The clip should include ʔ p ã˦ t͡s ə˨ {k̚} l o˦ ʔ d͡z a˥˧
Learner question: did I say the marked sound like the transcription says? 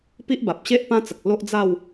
yes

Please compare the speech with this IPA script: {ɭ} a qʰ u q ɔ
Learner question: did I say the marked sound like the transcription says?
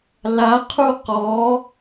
no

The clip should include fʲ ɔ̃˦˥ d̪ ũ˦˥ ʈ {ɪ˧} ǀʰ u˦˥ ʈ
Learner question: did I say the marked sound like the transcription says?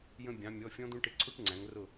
yes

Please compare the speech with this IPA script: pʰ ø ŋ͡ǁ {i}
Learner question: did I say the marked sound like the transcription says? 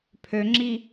yes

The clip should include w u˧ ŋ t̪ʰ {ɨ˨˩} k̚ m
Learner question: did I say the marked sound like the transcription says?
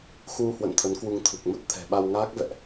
yes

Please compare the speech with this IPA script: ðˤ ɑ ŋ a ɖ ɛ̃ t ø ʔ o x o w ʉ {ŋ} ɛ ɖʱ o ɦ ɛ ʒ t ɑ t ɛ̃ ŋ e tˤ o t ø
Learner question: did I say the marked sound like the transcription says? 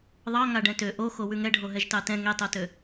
yes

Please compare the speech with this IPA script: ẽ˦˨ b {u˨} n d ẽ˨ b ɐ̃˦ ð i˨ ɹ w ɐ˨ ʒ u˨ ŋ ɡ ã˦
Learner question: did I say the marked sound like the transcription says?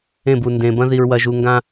yes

